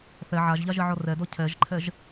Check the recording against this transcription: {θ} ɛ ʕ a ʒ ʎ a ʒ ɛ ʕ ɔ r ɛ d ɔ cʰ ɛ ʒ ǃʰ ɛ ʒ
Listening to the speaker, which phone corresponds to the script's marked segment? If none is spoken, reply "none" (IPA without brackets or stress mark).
θ